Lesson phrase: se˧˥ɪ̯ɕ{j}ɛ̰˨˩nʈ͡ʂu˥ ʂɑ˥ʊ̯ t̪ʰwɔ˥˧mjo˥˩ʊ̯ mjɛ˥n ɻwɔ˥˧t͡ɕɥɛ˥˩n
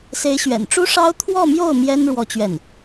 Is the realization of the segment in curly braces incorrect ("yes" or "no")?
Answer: yes